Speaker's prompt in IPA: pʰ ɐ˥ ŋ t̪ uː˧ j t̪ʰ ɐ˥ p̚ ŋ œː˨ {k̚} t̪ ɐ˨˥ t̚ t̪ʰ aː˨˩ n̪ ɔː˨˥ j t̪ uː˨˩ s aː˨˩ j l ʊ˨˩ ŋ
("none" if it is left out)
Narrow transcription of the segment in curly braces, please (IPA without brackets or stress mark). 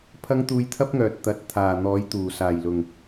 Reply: t̚